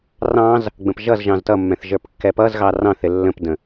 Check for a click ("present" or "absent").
absent